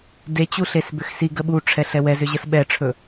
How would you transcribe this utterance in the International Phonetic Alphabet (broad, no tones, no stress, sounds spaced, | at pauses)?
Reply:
d e t͡ɕ u ɬ e s b ʏ x s i ɡ ə ɓ u ʈ͡ʂʰ ɛ ɬ ɛ w ɛ z ʏ ʑ ə s ɓ ɛ ʈ͡ʂʰ ɵ